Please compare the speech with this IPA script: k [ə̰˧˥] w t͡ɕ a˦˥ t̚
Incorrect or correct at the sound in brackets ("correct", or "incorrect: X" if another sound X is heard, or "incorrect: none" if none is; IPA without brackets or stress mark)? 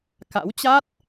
incorrect: a̰˧˥